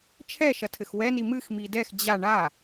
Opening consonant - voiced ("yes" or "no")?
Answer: no